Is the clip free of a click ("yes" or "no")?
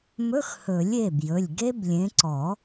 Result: no